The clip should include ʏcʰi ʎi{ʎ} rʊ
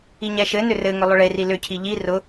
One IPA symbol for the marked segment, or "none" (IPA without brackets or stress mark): none